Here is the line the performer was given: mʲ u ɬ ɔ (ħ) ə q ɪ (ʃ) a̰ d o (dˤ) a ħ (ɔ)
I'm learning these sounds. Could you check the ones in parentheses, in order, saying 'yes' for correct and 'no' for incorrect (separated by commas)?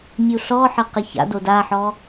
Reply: yes, no, no, yes